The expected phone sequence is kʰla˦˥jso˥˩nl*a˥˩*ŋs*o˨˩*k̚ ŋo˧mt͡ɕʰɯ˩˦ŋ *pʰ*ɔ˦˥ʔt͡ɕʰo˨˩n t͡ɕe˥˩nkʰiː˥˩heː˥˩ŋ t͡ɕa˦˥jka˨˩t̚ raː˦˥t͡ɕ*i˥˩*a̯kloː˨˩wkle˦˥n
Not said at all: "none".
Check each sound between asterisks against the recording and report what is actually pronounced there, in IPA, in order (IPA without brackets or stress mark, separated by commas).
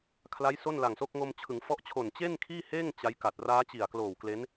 a˨˩, o˦˥, f, i˨˩